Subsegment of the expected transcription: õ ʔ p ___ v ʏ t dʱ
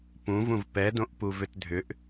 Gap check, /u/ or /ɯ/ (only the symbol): u